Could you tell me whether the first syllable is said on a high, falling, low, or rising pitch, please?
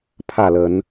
falling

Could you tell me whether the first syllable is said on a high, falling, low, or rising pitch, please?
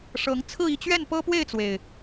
rising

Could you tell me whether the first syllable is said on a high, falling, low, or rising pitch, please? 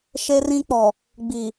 high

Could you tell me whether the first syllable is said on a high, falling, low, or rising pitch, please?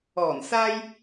low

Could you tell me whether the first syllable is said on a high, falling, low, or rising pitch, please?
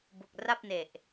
low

